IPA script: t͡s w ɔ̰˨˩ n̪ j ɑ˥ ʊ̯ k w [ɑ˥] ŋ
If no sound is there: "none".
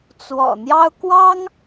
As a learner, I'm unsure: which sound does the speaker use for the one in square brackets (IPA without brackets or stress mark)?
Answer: ɑ˥